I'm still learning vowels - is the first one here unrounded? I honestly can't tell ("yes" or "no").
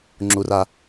no